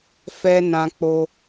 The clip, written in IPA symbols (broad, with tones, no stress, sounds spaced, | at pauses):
f ɛ˧ n ã˧ k͡p o˧